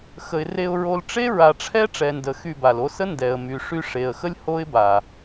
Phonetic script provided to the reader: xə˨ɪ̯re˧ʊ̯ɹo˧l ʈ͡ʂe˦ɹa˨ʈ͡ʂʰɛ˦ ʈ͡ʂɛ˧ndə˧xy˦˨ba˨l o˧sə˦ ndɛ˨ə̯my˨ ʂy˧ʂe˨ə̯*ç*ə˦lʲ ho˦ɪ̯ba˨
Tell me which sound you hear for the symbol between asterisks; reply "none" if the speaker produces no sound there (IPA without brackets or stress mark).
x